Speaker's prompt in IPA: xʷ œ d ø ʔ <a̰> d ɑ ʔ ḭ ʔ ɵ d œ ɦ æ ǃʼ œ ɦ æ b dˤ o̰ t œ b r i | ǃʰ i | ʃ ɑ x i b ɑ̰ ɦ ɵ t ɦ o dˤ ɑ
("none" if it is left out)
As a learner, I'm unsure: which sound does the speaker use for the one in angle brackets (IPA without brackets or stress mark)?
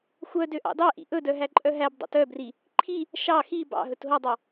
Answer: ɑ̰